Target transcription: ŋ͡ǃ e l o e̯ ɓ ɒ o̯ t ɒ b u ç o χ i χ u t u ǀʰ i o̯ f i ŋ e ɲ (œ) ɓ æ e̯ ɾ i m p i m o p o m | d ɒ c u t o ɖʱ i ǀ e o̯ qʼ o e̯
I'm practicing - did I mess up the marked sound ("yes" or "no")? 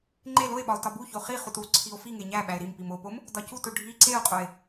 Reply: yes